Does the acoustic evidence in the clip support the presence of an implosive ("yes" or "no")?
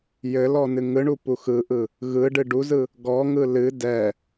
no